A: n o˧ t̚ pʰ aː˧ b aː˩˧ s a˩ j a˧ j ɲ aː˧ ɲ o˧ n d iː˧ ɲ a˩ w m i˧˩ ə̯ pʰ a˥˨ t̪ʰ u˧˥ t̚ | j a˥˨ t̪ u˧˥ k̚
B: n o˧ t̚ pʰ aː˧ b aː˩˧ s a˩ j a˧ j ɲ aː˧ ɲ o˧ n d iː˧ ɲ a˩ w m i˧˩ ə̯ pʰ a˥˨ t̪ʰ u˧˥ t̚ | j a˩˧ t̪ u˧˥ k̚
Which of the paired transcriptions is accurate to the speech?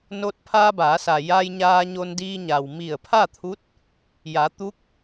B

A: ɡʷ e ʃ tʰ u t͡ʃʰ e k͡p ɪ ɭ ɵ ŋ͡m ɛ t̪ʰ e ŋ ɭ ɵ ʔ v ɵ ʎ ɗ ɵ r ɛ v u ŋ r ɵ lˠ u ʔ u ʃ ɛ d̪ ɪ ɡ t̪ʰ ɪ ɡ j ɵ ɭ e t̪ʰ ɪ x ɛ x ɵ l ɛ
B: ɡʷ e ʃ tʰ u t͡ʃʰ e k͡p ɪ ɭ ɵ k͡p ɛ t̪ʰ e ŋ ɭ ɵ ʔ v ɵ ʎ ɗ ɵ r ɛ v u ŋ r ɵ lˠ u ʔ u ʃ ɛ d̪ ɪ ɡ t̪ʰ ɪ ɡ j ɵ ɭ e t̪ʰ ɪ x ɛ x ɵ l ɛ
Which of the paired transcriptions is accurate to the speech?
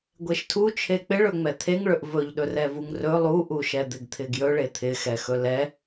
A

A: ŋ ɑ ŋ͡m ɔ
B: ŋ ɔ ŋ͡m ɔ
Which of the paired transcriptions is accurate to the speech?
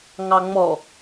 A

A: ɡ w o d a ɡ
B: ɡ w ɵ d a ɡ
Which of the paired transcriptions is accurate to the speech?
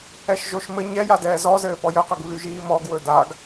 B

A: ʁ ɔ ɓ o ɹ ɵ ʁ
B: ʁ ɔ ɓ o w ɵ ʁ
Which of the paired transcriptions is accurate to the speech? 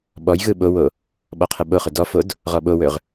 B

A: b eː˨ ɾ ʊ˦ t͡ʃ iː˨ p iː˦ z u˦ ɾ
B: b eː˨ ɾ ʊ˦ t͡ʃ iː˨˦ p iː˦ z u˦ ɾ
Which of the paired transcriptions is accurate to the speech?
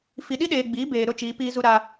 B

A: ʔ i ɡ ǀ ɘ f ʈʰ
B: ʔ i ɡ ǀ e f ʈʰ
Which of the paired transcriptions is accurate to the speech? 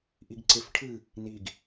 B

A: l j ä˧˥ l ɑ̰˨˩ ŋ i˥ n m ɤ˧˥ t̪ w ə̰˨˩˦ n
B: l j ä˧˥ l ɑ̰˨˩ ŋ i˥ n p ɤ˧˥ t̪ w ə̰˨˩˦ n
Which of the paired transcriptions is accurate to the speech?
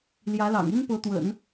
B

